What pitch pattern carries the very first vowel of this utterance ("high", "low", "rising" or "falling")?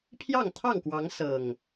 falling